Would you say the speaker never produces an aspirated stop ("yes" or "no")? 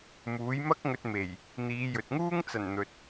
yes